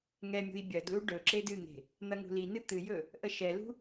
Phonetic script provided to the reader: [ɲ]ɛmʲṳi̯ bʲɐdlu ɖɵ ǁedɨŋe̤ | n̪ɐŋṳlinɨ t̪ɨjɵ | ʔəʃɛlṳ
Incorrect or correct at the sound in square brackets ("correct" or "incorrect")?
incorrect